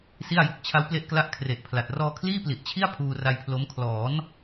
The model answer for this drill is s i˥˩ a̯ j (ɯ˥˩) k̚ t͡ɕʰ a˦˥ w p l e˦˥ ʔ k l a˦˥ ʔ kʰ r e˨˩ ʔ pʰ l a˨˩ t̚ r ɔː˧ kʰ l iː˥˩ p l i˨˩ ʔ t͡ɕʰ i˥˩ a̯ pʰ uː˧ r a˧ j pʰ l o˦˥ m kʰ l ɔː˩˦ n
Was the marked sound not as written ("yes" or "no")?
yes